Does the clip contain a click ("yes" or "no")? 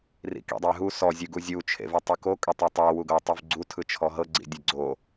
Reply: yes